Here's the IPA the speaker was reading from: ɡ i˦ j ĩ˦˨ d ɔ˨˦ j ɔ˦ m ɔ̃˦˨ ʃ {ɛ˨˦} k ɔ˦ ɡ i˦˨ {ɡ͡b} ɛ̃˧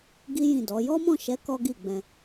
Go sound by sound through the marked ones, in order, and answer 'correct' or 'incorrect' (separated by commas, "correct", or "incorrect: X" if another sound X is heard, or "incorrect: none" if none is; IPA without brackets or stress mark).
correct, correct